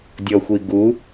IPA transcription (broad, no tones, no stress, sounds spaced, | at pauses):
dʲ ɔ xʷ i ɡ u